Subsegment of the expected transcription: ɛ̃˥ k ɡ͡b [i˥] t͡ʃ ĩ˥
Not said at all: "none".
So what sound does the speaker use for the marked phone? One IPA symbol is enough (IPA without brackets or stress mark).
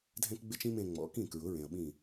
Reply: ɪ˥